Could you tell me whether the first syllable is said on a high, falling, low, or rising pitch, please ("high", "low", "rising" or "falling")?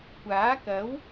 rising